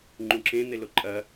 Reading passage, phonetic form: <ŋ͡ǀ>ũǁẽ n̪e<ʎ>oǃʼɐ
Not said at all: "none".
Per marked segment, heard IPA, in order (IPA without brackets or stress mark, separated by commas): ŋ͡ǃ, l